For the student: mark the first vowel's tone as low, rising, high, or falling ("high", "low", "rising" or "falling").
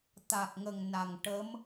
low